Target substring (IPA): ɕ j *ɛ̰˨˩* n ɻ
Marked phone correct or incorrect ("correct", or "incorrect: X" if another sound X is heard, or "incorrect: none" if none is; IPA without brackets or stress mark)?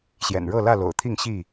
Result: correct